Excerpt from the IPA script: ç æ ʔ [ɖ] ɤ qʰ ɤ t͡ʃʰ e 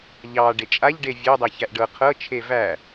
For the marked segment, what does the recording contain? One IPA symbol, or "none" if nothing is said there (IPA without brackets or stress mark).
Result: ɖ